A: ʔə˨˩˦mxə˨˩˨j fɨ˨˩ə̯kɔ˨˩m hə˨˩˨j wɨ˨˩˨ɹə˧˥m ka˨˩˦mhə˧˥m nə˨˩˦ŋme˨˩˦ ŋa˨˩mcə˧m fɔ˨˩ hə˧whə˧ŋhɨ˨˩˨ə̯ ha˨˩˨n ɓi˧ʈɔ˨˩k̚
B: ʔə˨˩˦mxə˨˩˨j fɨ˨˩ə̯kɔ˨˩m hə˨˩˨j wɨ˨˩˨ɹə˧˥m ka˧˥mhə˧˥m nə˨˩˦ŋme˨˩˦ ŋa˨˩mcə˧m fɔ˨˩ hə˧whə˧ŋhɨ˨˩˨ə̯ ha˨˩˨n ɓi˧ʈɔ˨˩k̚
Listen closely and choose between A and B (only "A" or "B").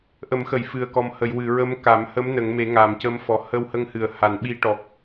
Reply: A